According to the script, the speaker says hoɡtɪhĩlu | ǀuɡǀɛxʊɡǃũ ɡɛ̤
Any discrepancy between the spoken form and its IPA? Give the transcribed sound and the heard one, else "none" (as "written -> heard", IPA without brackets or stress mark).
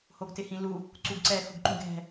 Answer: none